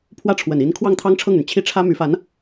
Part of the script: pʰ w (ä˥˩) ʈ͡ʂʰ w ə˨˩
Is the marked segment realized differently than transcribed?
no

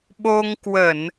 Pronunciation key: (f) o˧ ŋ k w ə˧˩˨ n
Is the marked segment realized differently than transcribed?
yes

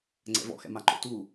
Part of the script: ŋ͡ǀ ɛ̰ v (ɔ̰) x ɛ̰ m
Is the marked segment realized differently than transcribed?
no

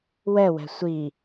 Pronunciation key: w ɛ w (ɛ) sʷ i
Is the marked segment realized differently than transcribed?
yes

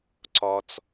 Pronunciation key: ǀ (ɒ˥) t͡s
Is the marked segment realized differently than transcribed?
no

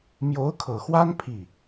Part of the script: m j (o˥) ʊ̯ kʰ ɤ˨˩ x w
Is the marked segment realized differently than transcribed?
yes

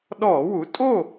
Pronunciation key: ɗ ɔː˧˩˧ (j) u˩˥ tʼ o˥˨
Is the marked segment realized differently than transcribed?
yes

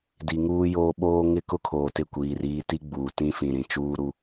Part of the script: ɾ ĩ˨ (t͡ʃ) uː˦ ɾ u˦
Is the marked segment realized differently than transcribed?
no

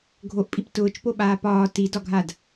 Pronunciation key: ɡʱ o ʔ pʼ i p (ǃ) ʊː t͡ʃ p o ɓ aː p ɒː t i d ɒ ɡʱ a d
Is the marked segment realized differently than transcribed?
yes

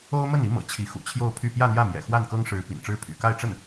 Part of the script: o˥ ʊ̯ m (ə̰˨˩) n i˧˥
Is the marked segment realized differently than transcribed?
yes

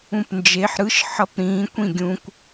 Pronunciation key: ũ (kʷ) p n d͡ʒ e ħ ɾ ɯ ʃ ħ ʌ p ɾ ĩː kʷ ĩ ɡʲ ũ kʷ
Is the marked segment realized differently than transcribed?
yes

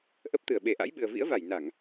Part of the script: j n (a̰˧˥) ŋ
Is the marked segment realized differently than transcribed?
yes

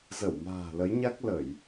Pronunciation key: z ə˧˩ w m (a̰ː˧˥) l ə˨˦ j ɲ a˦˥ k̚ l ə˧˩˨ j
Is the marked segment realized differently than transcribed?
yes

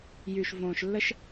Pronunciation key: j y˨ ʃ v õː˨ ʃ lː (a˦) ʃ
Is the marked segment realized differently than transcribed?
yes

